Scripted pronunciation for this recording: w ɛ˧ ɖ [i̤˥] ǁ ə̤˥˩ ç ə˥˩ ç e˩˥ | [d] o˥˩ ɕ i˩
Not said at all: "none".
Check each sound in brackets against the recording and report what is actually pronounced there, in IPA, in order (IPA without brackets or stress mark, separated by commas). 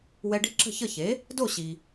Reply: i̤˥, d